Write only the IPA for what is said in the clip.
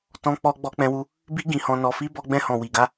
t ɔ̃˧ k͡p ɔ˧ ɡ͡b ɔ˧ k͡p ɛ̃˧ w u˧ | b i˧ ɡ ĩ˨ h ɔ̃˨ n ɔ˨ f i˧ b ɔ˧ ɡ͡b ɛ̃˧ h ɔ̃˨ w i˨ ɡ a˧

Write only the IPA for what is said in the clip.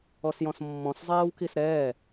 ɔ s j ɔ̃ s mː ɔ̃ s zˤ ɛː w k i s ɾ ɛː

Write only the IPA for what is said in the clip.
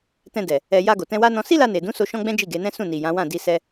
t ɛ̃˧ d ɛ˨ | ɛ˨ j a˧ ɡ o˨ t ɛ̃˧ w a˦ n ɔ̃˧ s i˦ l a˧ n e˨ d ũ˨˦ s o˧ ʃ ɔ̃˦ ɡ͡b ɛ̃˦ d͡ʒ i˦˨ ɡ e˨˦ n ɛ̃˦ s ũ˦˨ n i˨ j ã˨˦ w ã˦˨ d i˧ s ɛ˦

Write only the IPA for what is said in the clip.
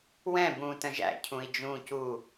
w ɛ̃ b ũː t ə̃ ʒ æ̰ cʰ ũ i̯ d͡ʒ ũː c u

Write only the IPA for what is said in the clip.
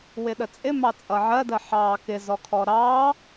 w ɪ ɗ ə t͡sʼ ɪ m ɑ t͡sʼ ʌ ʕ ɜ d ɜ ħ ɑː k ɪ z ɔ kʰ ɔ ɾ ɑː

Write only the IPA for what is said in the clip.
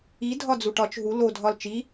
i dʱ ɒ d͡z u ʈ ɒ t͡ʃ ɦ u l o dʱ ɒ l t͡ʃ i

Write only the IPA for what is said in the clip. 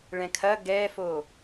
ɭ ɛ̃ kʰ ɐ ɡ ɛ f o

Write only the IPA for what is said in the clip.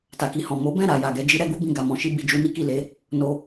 t a˨ k i˨ h ɔ̃˨ m o˨˦ b ɛ̃˦˨ ɾ a˨ j a˨ ɡ ɛ˨˦ d͡ʒ i˦ ɾ ɛ˦ ɡ u˦ b ĩ˧ ɡ a˨ m ɔ̃˨˦ ʃ i˦ b i˧ d͡ʒ u˦ n i˦ k i˦˨ l e˨˦ | n o˧

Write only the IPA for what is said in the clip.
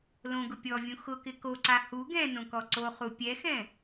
l õ ɡ ʊ pʲ ɔ vʲ ũ x ʊ k ɪ k o ǀ a h u ɡ ɛ̃ n õ k ɔ ǀ o χ u pʲ ɛ x ɛ̃

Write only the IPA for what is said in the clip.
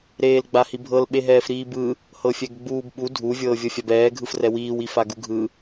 ɾ eː l ɡ͡b a h i bʱ ɤ l ɓ e ɦ ɛː f ɾ iː b ɯ | h ɤ fʲ ɛ ɡ ɡ͡b uː b ɓ u dʱ u vʲ ɤː vʲ ɤ fʲ a b ɛː ɡʱ ɯ f r ɛ w iː w i f a ɡ u ɡʱ ɯ

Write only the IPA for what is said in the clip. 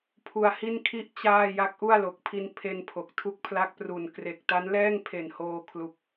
pʰ u˧ a̯ h i˥˩ n kʰ i˥˩ ʔ t͡ɕ aː˥˩ j a˦˥ k̚ ʔ u˥˩ a̯ l o˨˩ k̚ pʰ i˧ n pʰ e˧ n pʰ o˨˩ k̚ tʰ u˦˥ k̚ pʰ l a˦˥ k̚ p r u˨˩ n k r e˨˩ k̚ t a˦˥ n l ɛː˥˩ ŋ pʰ e˨˩ n h oː˧ kʰ l u˨˩ k̚

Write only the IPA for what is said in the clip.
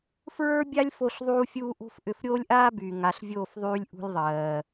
f ɹ ə˞˦ bʲ a˦ lʲ f o˧ ɬ ðˤ uː˦ fʲ uː˦ ʔ o̤˦ f ʔ ʏ˧ f ɾʲ oː˦ lʲ ʔ aː˦ b yː˨ ŋ a˨ ɬ vʲ oː˦˨ f ðˤ yː˧ lʲ ʔ ṳ˧ lʲ ðˤ ɜː˨

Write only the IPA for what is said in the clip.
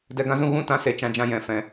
d ɛ˧ ɡ ã˦ z ũ˦ ɣ ũ˦ t ã˧ s e˧ t͡ʃ ã˧ d͡ʒ ã˧ j ɛ̃˨ f ɛ̃˨

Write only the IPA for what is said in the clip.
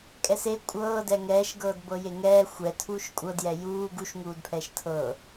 kʼ ɛ s e kʷʼ ɤː d ɛ ŋ ɛː ʃ ɡ ɤː d b ɤ j e ŋ ɛː xʷ ɛ tʰ uː ʃ kʷʼ ɤ d j ɛ j uː ɡ u ʃ ŋ uː d pʰ ɛː ʃ tʰ ɤː

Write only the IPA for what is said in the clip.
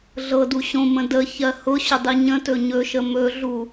ɮ ɤ d u ɕ õ m ə̃ d ə ç ɜ h ʊ ɕ ʊ dˤ i ɲ ə̃ t ɵ ɲ ɵ ʃ ə m ɵ ɮ u

